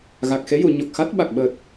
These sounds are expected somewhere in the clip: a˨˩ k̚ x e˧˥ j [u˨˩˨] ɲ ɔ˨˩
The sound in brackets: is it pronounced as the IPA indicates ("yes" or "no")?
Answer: yes